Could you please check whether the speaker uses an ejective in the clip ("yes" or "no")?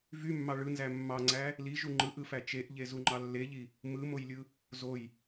no